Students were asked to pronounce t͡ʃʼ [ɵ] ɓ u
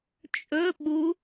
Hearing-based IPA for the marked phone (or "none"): ɵ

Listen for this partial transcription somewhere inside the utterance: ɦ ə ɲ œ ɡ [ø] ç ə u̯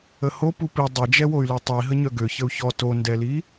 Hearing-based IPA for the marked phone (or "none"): ø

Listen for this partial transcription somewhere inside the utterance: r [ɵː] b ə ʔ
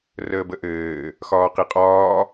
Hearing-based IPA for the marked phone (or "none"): əː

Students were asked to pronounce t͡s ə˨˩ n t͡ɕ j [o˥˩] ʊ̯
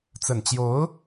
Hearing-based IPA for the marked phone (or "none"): o˧˥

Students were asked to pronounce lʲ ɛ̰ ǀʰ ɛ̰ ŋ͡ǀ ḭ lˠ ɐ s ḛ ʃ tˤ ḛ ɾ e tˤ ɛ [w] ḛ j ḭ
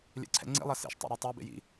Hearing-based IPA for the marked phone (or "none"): b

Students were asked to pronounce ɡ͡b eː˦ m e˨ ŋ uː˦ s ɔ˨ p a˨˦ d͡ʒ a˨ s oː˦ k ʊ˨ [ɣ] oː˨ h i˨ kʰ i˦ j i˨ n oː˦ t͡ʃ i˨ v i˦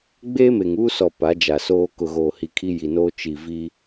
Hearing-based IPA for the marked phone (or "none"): ɣ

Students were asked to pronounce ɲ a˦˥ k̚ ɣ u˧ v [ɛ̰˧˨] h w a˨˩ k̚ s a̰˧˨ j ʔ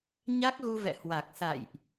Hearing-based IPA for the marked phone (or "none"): ɛ̰˧˨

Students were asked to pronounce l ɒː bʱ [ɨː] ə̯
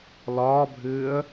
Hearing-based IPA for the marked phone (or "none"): ɨː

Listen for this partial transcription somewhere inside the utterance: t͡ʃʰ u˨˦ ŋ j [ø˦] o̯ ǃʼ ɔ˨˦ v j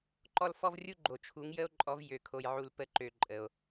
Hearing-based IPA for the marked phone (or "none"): ə˦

